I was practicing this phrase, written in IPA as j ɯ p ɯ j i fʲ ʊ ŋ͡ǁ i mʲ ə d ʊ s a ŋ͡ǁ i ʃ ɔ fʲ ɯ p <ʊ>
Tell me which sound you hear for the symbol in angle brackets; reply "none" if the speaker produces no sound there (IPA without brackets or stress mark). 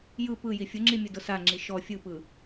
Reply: ɯ